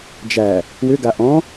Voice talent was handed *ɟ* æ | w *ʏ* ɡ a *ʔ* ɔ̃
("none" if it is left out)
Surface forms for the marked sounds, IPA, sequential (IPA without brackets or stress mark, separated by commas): d͡ʒ, ʏ, ʔ